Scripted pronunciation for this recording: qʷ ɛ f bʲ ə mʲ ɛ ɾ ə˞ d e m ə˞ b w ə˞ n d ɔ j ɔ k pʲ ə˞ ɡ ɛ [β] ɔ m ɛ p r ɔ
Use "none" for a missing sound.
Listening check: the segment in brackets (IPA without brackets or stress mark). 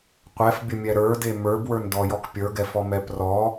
f